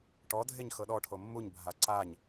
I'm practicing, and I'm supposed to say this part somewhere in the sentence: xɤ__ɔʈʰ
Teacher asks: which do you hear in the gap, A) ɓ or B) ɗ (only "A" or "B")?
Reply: B